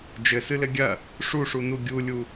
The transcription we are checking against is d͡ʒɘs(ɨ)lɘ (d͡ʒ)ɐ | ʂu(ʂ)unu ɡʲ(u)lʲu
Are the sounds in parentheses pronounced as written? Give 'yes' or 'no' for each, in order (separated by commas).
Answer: yes, no, yes, yes